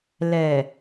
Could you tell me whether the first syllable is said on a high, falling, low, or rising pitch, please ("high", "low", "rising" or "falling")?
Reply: low